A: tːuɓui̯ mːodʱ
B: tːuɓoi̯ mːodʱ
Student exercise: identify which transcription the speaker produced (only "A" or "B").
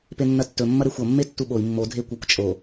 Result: B